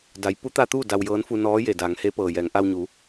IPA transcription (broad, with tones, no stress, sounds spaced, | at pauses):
d a˩˧ j p u˧˥ t̪ a˧ t̪ uː˥˨ d a˧ w j ɤː˧˥ n f u˧ n ɔː˧˥ j e˩ d aː˩˧ ŋ h eː˧˥ p ɤː˩ j ɛː˩˧ ŋ ʔ a˧ w ɲ u˩˧